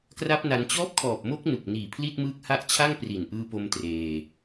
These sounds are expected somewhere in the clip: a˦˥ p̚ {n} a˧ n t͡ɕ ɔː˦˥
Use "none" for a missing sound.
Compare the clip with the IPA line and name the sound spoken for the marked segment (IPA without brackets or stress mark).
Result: n